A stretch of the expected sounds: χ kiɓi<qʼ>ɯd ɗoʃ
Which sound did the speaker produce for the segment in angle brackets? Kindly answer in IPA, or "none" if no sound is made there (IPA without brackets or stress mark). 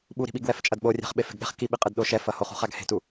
qʼ